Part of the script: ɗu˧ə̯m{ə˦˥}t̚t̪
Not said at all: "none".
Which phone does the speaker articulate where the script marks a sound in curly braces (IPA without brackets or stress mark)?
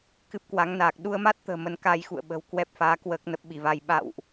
a˦˥